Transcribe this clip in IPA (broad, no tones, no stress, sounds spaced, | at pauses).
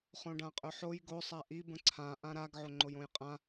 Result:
χ õ ɖ ã qʼ ɵ ħ o j ɡ o sˤ a ʔ i b ə̃ ǀʰ ã ʔ ã ɾ a ɡ ʕ o ŋ͡ǃ o j õ j qʼ ã